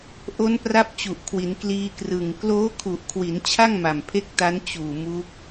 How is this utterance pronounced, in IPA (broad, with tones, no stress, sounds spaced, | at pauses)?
ʔ o˦˥ n p r a˦˥ p̚ t͡ɕ u˨˩ ʔ kʰ w i˩˦ n k l iː˧ k r ɯ˨˩ ŋ k l oː˦˥ kʰ u˨˩ ʔ kʰ w i˩˦ n t͡ɕʰ a˥˩ ŋ m a˨˩ m pʰ e˦˥ k̚ t a˦˥ n t͡ɕ uː˨˩ m u˦˥ k̚